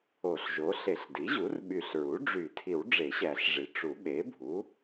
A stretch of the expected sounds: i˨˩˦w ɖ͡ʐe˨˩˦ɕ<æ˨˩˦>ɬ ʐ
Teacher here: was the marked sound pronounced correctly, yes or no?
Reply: yes